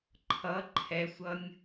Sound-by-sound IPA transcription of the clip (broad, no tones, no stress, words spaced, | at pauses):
ǃʰʌ ǃʰɛsʷʌnʲ